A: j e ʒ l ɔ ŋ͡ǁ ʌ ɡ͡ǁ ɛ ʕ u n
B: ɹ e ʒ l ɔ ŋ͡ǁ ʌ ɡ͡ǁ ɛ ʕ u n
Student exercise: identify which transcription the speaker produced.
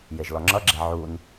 A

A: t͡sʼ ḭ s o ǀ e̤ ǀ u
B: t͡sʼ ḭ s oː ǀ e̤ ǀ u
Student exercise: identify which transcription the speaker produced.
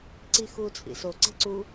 A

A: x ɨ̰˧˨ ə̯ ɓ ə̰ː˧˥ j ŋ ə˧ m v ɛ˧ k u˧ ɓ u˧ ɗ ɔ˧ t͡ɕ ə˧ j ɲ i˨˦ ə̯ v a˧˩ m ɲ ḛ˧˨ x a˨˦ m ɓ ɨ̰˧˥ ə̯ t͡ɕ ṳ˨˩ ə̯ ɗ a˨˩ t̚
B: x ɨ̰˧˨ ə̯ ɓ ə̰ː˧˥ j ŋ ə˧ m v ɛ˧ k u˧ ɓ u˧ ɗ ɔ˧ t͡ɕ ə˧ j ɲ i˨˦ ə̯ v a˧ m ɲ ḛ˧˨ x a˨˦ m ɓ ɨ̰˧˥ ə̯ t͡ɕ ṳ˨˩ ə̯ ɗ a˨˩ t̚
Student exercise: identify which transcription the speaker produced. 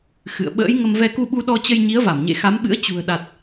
A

